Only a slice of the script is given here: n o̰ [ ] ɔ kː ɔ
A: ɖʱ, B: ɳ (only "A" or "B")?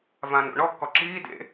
B